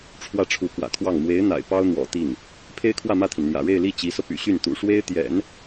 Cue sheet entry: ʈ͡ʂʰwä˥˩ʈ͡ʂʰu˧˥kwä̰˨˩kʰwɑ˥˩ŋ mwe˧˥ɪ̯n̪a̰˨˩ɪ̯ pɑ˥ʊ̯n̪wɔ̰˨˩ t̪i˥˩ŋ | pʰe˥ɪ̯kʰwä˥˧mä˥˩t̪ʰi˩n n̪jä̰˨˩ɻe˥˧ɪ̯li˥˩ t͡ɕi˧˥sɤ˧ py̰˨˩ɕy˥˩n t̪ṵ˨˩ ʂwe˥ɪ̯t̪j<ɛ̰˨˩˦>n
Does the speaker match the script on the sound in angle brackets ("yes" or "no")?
yes